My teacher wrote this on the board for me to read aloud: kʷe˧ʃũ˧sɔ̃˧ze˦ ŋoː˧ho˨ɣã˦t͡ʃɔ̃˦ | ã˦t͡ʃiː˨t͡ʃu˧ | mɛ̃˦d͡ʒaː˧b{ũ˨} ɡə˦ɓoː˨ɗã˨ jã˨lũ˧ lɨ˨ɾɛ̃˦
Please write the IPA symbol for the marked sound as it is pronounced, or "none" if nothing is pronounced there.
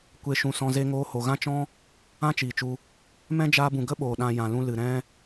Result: ũ˨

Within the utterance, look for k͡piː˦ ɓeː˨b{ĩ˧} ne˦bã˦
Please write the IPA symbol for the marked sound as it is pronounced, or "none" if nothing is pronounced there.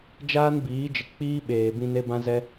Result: ĩ˧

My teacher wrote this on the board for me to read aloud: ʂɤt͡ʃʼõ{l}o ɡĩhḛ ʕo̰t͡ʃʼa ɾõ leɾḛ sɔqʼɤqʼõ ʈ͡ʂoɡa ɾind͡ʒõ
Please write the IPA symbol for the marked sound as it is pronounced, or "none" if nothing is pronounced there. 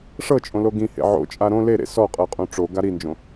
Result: l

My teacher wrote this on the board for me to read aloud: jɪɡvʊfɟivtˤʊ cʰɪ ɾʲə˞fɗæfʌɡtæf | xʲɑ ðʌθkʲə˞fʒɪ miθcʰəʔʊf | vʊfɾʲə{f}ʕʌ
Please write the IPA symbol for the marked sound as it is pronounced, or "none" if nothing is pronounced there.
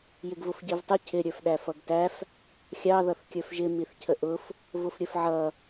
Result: f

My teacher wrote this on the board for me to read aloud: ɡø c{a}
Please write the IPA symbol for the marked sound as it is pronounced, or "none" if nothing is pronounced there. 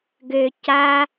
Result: a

